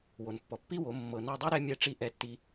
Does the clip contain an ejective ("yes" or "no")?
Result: no